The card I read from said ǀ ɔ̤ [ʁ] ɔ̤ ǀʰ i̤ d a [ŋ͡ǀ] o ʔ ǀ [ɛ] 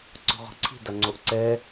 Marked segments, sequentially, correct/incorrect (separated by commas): correct, correct, correct